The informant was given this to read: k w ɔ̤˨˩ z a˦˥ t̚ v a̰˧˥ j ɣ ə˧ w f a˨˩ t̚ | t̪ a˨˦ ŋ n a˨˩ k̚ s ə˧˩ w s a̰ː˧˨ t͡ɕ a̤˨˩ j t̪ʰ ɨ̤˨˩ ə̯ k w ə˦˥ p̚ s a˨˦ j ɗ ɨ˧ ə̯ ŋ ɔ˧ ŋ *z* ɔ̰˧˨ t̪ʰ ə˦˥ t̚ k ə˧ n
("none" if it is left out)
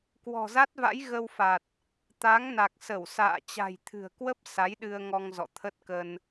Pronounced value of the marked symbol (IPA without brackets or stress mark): z